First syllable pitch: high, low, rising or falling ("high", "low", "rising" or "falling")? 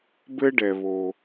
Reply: high